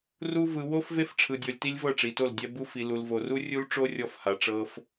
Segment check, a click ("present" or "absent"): absent